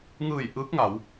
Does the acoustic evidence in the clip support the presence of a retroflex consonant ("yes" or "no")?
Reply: no